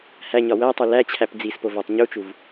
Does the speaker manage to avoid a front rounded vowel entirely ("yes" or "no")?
yes